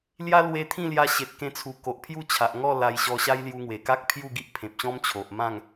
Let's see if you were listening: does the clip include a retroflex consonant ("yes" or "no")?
no